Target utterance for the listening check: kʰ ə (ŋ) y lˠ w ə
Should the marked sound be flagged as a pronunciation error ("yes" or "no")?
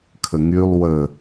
no